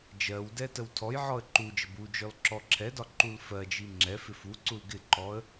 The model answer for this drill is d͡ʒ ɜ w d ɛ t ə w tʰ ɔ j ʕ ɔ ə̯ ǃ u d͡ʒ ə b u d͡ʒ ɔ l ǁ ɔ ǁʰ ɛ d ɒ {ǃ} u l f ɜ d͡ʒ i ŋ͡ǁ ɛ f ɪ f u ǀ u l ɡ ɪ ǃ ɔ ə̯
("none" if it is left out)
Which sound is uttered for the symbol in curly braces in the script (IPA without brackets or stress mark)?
ǃ